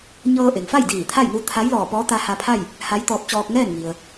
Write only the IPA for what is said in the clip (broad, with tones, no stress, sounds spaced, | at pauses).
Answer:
ɲ ɤː˧ ʔ e˩ ŋ f a˥˨ j d iː˧˩ t̪ʰ a˥˨ j n u˧˥ t̪ʰ a˧˥ j l ɔː˧˩ p ɔː˧˥ t̪ a˧ h a˧ pʰ a˥˨ j | h a˧˥ j t̪ ɔː˧ p̚ t͡ɕ ɔː˧ k̚ ŋ ɛː˥˨ n ŋ i˩ ə̯